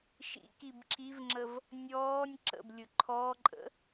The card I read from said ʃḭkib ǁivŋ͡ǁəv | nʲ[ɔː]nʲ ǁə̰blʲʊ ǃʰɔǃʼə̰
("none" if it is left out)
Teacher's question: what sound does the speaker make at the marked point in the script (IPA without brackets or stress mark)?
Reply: ɔː